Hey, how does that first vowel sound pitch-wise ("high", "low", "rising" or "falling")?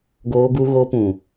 high